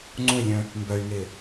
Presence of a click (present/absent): present